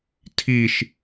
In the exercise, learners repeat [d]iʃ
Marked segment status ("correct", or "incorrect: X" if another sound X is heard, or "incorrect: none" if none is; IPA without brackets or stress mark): incorrect: tʰ